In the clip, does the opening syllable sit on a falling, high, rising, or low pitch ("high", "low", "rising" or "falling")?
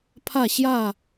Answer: falling